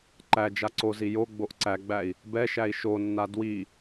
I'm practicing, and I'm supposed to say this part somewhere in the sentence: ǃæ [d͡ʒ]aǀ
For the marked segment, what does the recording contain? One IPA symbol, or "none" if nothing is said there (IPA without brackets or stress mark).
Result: d͡ʒ